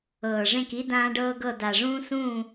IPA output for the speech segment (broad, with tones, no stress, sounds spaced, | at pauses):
ɤː˨˩ ʐ ẽ˥˨ k i˥ d ãː˥ ɖ ɤː˥ ɡ ɤ˥˨ d a˨˩ ʐ ũː˥ s ũː˥˨